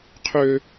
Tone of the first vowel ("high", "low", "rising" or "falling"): high